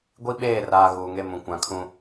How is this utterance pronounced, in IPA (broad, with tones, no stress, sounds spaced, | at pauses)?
ɡʷ i˦ ɓ eː˦˨ r aː˨ ɣ uː˨ ŋ e˦ m ũ˨ kʷ ã˨˦ kʰ ũ˦